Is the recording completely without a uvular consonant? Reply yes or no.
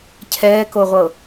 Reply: no